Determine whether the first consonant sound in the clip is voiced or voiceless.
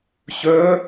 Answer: voiceless